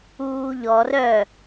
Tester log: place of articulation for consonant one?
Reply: palatal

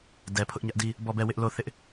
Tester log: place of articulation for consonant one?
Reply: alveolar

